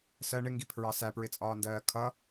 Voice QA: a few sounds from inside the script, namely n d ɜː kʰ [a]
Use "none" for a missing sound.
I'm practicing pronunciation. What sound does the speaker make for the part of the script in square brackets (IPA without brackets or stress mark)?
ʌ